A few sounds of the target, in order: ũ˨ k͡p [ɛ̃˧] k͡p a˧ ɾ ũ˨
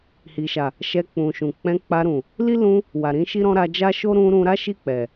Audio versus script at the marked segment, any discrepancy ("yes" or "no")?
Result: no